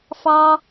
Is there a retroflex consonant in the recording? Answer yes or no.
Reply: no